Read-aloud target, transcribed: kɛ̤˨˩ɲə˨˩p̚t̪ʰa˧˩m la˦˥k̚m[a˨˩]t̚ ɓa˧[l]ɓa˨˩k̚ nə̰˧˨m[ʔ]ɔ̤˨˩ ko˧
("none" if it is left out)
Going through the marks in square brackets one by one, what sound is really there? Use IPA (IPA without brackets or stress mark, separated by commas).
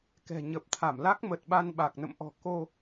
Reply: ə˨˩, n, ʔ